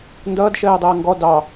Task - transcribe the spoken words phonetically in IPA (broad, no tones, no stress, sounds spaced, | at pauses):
n d ʌː d ʃ ɜː dˤ ʌː ŋ ɡ ɔ d ɑ